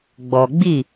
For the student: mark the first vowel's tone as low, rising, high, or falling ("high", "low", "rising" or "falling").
low